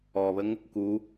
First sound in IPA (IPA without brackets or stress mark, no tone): ɔ